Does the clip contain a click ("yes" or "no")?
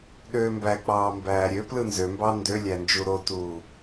no